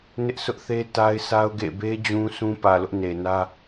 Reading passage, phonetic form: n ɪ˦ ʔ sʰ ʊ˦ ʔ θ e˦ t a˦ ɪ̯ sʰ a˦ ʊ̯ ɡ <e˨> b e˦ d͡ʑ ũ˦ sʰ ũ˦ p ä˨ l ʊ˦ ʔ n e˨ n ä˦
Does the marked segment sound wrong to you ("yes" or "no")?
yes